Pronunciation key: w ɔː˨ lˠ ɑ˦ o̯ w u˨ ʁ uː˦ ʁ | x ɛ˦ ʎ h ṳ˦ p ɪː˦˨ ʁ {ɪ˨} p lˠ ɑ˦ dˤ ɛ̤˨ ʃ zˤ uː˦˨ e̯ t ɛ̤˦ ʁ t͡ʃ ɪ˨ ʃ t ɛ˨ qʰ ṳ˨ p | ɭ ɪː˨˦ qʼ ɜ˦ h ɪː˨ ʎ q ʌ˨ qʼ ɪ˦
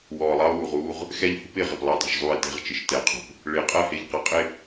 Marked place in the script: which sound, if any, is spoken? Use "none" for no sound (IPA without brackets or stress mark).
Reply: ɪ˨